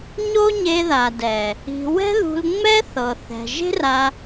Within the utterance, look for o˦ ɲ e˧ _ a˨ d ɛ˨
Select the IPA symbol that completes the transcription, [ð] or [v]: ð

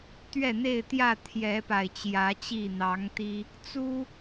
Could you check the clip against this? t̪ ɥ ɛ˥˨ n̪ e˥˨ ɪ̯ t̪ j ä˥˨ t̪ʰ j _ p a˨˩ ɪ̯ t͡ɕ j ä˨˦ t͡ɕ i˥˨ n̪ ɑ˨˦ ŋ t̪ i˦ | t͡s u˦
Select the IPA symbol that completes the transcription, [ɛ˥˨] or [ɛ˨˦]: ɛ˨˦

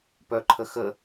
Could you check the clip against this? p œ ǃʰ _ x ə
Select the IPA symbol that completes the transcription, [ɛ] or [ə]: ə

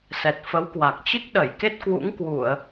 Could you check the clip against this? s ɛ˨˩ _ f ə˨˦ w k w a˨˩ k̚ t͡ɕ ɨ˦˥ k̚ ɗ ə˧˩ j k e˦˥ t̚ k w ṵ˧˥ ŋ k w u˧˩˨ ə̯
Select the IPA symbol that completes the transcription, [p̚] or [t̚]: t̚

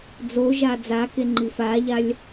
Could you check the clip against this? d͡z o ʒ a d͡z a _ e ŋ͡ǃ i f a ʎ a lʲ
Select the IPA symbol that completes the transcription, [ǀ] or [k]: k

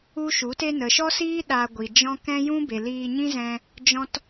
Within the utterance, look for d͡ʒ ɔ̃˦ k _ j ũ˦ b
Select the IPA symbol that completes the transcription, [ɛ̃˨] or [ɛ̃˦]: ɛ̃˦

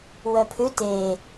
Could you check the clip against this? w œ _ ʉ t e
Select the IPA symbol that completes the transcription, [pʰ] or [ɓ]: pʰ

